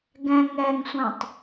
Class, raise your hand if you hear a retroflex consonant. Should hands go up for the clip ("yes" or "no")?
no